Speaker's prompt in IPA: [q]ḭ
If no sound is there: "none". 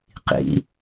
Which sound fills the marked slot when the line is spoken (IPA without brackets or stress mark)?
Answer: q